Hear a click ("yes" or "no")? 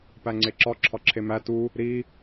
yes